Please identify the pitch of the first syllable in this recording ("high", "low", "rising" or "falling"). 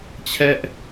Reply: high